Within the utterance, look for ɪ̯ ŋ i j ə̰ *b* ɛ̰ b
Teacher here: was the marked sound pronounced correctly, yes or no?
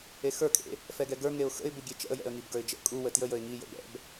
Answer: yes